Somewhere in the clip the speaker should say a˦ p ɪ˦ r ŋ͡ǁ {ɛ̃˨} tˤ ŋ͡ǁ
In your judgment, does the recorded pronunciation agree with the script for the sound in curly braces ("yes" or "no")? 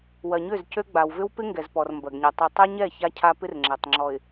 no